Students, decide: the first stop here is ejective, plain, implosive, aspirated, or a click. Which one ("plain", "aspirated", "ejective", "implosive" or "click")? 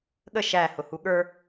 implosive